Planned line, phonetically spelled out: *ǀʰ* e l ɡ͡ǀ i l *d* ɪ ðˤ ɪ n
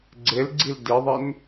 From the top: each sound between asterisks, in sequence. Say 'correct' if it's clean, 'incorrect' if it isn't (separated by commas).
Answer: incorrect, correct